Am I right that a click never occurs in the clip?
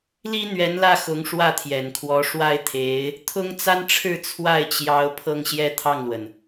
yes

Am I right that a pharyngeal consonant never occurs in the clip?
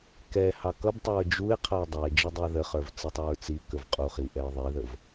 yes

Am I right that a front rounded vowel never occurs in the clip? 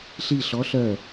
no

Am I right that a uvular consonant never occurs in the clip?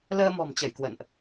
yes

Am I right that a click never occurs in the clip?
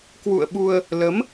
yes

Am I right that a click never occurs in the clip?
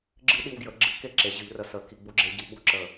no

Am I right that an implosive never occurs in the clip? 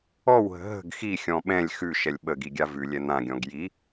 no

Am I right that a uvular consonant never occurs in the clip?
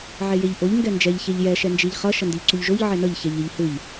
no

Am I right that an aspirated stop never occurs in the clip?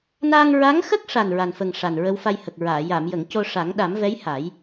yes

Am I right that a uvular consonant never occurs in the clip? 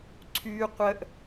no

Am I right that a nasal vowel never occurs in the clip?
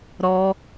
yes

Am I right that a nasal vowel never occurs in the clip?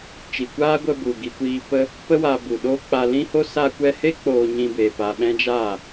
no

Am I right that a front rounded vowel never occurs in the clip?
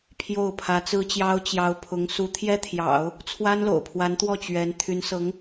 no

